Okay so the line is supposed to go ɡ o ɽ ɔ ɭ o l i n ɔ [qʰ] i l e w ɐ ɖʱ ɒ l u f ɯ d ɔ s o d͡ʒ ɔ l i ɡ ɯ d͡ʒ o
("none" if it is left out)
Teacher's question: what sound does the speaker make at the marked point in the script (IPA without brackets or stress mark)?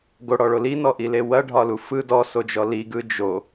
ʔ